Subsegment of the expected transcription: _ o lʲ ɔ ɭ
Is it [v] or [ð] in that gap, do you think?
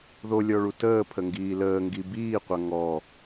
ð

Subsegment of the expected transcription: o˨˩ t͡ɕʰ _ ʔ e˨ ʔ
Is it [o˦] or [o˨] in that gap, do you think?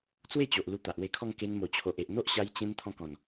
o˨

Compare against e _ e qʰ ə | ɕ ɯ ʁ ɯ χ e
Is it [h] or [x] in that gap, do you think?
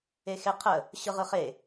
x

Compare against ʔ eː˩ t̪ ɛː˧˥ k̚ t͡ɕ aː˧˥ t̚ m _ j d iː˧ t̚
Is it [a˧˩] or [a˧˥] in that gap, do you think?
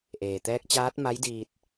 a˧˥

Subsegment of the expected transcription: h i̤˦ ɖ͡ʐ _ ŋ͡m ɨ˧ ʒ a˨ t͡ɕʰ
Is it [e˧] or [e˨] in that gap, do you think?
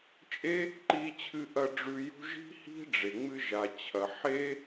e˨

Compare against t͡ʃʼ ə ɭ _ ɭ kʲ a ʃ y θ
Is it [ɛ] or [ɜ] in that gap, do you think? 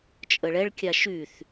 ɛ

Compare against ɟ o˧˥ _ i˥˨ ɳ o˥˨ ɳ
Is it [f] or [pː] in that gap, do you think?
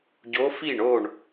f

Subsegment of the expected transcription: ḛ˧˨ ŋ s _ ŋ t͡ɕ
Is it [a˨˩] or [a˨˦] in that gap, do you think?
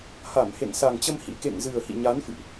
a˨˩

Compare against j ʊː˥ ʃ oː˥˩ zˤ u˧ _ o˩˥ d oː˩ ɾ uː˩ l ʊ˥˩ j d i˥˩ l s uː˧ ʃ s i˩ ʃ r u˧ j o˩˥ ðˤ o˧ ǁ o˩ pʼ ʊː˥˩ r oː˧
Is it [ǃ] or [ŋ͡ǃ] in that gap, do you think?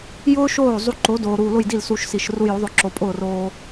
ǃ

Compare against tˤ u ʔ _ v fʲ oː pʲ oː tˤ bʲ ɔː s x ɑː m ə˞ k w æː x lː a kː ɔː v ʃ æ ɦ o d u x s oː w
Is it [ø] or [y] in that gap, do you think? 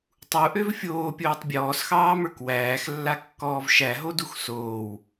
ø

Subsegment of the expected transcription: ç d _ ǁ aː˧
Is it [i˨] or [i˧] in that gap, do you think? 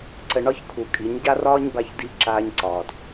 i˧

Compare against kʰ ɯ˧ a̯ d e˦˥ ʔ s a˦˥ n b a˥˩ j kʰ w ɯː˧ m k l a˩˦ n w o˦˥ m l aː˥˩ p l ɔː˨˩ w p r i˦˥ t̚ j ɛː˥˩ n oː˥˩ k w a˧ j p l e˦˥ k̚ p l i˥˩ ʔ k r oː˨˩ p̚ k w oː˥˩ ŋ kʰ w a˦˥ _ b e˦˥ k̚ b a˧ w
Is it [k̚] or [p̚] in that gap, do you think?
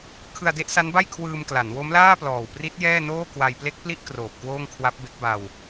p̚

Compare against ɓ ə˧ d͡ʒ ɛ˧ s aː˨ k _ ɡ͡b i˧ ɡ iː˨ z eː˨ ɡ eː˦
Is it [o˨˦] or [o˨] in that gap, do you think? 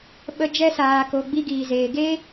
o˨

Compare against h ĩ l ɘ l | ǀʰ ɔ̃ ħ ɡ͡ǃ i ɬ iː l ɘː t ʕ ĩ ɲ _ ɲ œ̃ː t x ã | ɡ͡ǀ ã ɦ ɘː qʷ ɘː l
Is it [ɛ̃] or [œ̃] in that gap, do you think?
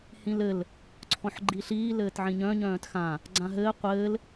œ̃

